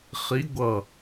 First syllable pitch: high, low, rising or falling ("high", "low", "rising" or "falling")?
rising